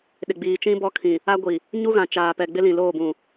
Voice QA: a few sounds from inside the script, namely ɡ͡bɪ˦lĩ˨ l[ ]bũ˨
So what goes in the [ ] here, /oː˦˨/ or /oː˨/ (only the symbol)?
oː˦˨